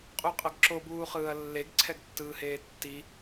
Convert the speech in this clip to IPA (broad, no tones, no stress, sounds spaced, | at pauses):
qʼ u qʼ ʌ ɡ ǁ o b uː χ ɯː ɐ̯ lː e ɡ ǀʰ ɛ ɡ tː ɯː h eː tː i